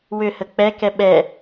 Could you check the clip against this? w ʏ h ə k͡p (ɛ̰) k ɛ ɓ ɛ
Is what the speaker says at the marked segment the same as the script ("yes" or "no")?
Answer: no